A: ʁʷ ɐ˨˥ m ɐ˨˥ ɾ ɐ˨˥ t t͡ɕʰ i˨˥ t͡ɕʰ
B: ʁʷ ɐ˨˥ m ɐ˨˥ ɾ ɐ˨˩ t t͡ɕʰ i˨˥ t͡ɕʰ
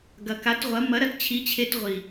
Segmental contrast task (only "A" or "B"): A